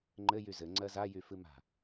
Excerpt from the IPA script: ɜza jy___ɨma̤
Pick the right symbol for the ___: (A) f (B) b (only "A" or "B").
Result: A